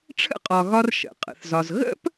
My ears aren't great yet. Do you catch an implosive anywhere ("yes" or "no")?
no